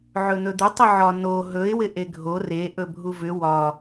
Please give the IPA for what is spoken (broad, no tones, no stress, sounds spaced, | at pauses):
ʕ ɵ n̪ ɵ d̪ ɪ tˤ ɪ ʕ ɒ n o ɦ ɵ ɪ̯ w ɪ ʔ e ɡʱ o r e ʔ ɵ bʱ u v ʏ w ɒ